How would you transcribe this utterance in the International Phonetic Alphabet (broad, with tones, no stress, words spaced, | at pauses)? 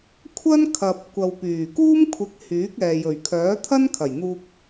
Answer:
kʷʰɐ˥nkʰɐ˨p̚kʷɐ˨wpyː˨˩ kuː˥mkʷʰɪ˨k̚ hyː˨˥k̚ɛː˨ jɵ˨˩ɥkʰœː˨˥t̪ʰɐ˥nkʰɐ˨˩j n̪uː˧k̚